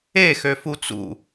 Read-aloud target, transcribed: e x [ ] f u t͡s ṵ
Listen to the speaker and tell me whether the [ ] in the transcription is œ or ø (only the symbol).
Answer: ø